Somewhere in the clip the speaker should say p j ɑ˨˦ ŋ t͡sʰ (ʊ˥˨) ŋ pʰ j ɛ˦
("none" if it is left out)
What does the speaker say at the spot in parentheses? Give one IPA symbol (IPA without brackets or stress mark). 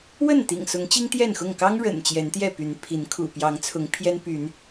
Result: ʊ˨˦